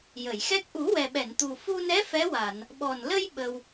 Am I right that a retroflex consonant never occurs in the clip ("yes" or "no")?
yes